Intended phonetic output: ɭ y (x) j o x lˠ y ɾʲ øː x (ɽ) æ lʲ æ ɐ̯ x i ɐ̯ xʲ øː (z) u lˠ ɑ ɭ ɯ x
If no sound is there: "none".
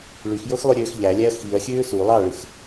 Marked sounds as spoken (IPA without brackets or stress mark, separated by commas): x, ʎ, s